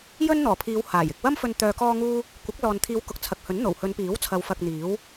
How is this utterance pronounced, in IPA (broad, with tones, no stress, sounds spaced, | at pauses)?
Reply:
j ɵ˥ n n̪ ɔː˨˩ pʰ iː˨˧ w h aː˨˩ j ɪ˨ k̚ w ɐ˥ m f ɵ˧ n t̪ œː˧ k ɔː˥ ŋ uː˥ | kʷ ɐ˨˥ k̚ l ɔː˨ n t̪ʰ iː˨˧ w k ʊ˨ k̚ t͡sʰ ɐ˨ k̚ h ɵ˨˥ n n̪ o˨˩ w h ɵ˨˧ n p iː˨˥ w t͡sʰ ɐ˨˧ w f ɐ˧ k̚ n̪ iː˨˥ w